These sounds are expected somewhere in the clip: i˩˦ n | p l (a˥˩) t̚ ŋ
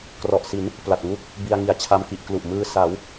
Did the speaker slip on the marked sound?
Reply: yes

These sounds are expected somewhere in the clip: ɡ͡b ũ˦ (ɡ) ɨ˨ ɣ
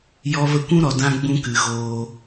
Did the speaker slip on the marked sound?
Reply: yes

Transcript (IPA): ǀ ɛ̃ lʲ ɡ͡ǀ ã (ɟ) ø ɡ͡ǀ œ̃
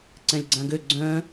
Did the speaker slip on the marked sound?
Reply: yes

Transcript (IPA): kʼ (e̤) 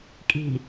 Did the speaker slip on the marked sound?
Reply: yes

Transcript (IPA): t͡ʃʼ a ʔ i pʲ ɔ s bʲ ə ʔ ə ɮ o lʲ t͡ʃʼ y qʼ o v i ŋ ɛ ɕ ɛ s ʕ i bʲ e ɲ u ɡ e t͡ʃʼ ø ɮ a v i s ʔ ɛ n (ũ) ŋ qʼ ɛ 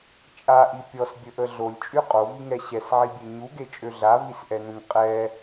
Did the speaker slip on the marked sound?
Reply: no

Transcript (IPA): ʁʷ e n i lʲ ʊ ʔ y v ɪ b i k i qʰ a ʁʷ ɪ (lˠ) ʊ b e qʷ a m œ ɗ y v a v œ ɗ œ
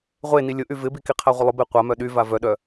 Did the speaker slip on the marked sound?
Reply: no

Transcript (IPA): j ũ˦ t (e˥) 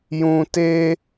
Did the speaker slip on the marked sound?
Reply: no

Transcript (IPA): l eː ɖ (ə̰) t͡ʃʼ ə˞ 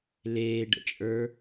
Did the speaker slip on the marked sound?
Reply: no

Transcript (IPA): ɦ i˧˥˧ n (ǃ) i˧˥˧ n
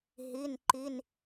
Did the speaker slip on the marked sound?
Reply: no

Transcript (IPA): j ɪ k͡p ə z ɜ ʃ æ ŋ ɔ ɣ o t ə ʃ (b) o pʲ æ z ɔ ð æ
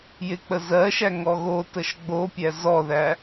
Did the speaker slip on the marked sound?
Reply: yes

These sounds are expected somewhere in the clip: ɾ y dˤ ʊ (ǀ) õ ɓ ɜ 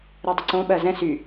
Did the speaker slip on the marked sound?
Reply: no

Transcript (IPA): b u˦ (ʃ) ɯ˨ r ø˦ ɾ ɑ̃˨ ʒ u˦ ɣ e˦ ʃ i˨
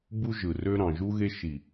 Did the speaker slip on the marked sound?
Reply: yes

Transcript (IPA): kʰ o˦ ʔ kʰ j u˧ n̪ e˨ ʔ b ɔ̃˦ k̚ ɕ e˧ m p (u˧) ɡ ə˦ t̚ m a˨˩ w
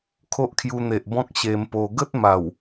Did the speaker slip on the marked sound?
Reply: yes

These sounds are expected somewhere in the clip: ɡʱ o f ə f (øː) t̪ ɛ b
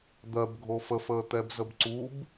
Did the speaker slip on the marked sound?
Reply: yes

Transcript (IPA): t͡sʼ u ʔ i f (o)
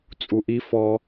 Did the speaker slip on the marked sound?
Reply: yes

